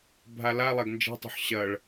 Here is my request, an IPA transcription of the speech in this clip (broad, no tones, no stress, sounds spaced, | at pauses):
bʱ a l a lˠ a ɡ n d͡ʒ e̤ tˤ ṳ ħ ɕ ɐ ɭ